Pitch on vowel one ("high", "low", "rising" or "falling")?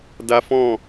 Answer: high